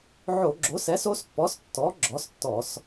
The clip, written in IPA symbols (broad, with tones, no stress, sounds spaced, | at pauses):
ʕ o˧˩˧ ɡ͡ǁ o˩˥ s ɛ˩˥ s o˩˥ s pː ɔ˩˥ s tː ɔ˩˥ ɡ͡ǁ ɔ˩˥ s tː ɔ˧˩˧ s